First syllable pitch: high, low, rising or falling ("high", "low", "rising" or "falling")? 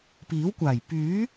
rising